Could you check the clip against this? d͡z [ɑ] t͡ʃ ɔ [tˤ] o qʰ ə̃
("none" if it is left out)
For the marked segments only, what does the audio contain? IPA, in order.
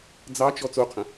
ɑ, t͡s

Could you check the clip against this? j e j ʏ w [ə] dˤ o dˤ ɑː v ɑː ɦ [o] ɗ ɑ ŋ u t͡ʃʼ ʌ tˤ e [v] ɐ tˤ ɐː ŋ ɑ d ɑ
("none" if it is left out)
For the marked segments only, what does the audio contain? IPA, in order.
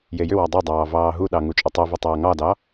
ɑ, u, v

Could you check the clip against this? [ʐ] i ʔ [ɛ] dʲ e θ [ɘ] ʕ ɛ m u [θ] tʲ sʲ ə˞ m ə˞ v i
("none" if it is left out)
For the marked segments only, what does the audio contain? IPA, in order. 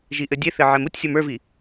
ʒ, ɘ, ɘ, none

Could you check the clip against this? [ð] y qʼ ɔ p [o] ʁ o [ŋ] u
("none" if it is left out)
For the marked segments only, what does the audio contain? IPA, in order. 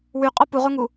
w, u, ŋ

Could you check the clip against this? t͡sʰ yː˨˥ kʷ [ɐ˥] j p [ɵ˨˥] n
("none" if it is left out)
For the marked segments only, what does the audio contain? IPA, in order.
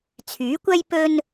ɐ˥, ɵ˥

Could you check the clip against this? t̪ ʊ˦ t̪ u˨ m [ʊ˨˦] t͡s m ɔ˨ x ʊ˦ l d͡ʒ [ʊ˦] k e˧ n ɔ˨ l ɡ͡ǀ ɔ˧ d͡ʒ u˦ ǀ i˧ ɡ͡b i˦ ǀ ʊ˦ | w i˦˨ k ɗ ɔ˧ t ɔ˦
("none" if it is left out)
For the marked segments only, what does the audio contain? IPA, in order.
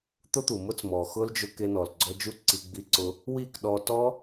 ʊ˦, ʊ˧

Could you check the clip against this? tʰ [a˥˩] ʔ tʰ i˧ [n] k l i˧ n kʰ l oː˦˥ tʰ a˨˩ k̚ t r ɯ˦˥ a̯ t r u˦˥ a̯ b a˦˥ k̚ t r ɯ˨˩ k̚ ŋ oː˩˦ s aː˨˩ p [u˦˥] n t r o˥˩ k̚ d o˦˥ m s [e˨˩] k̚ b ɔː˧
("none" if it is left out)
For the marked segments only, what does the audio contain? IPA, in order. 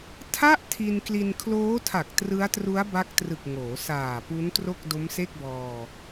a˥˩, n, u˦˥, e˥˩

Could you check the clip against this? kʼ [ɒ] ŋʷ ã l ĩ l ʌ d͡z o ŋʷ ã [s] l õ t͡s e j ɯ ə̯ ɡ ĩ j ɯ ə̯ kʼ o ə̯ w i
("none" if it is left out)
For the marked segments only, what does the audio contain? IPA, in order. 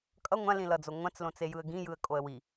ʌ, t͡s

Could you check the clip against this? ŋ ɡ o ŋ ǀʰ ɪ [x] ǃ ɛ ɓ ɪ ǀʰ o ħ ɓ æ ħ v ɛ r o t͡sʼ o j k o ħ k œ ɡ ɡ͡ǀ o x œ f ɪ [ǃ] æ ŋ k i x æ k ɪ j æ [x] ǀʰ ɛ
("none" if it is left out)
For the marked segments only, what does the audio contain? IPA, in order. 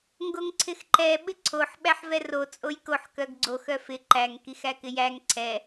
x, ǃ, ŋ

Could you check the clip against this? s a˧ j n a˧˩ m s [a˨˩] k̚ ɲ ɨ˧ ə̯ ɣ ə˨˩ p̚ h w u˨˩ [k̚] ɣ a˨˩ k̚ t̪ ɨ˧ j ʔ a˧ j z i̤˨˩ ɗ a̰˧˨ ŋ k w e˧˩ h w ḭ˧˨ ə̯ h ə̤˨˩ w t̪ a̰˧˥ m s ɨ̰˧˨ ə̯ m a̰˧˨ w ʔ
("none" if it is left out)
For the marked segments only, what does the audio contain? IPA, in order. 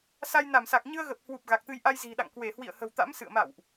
a˨˩, p̚

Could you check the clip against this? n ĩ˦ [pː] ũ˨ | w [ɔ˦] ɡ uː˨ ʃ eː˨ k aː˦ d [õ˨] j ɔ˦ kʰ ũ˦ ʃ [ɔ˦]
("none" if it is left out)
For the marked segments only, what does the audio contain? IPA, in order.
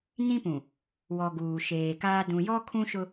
p, ɔ˨, ũ˨, ʊ˦

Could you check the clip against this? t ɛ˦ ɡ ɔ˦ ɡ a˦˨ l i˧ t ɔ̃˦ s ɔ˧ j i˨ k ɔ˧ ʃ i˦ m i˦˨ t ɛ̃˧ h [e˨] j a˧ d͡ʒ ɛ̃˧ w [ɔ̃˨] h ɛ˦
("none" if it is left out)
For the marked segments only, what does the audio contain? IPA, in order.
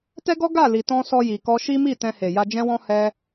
e˨, ɔ̃˧

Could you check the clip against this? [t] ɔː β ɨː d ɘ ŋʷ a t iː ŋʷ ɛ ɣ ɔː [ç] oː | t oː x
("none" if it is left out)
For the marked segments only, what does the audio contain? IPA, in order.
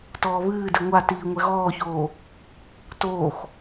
t, ç

